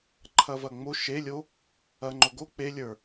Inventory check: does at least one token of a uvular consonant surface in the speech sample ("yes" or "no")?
no